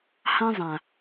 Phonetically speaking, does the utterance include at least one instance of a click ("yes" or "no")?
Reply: no